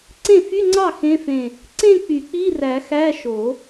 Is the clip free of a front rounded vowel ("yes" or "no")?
no